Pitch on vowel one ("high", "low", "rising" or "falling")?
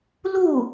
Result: falling